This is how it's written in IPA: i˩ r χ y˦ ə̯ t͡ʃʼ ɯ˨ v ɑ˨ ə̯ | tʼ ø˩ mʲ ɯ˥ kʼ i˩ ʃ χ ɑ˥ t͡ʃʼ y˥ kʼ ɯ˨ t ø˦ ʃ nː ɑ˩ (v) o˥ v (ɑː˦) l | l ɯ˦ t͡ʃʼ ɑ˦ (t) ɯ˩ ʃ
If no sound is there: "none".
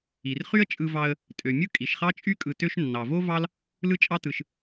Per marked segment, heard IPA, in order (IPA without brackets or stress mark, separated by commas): v, ɑ˦, t